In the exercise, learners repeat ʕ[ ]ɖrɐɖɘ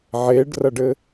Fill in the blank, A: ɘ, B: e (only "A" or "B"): B